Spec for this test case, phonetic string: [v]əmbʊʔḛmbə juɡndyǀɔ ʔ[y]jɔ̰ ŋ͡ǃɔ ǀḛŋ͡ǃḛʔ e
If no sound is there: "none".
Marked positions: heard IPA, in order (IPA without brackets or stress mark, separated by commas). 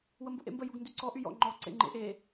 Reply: w, y